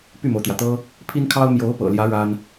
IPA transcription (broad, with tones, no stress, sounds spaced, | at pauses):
p y˥˩ m o˩ ʊ̯ t̪ j ä˩ t̪ ɤ˥ | pʰ i˥ n kʰ ɑ˥ ʊ̯ m j o˧˥ ʊ̯ p ɤ̰˨˩ l j ä˧˥ ɻ a˥ n